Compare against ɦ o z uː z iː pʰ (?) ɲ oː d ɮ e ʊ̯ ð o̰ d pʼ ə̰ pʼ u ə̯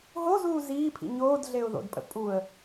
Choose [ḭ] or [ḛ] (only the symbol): ḭ